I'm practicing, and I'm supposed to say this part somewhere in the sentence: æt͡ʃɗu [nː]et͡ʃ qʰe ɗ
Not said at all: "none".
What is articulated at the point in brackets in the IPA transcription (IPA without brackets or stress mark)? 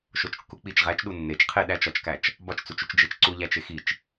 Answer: nː